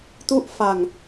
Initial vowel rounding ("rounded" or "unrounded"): rounded